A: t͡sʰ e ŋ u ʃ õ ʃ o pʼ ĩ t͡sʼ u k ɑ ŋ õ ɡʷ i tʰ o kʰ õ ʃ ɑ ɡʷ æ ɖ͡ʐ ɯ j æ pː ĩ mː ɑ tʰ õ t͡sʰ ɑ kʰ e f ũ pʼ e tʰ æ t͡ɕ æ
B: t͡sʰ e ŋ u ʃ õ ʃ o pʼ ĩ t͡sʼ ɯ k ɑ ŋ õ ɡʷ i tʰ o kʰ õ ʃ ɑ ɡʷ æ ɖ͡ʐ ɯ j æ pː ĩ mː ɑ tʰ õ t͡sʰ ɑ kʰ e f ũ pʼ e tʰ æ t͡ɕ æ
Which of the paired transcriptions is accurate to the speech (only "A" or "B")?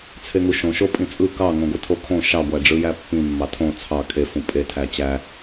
B